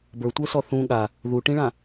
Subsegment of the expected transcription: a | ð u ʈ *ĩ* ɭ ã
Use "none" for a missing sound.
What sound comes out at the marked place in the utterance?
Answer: ĩ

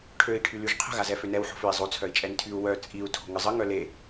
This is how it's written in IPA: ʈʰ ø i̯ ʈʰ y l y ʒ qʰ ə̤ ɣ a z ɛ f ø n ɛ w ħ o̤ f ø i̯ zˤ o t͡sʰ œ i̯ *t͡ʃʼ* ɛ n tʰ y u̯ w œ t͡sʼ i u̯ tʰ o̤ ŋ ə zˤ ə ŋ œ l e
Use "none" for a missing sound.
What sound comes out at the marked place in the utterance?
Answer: t͡ʃʼ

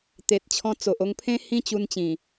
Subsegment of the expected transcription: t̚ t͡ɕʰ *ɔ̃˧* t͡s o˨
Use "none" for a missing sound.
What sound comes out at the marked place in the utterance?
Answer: ɔ̃˧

